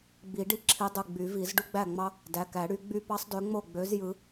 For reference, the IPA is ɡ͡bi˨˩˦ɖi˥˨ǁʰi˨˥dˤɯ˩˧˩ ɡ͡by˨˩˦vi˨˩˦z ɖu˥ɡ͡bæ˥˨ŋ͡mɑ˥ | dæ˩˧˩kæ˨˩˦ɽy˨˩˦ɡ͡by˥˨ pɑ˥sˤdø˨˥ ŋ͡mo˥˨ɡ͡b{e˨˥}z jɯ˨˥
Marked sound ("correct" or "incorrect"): incorrect